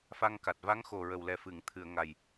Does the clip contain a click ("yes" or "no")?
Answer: no